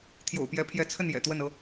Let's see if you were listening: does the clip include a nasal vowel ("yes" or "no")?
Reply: no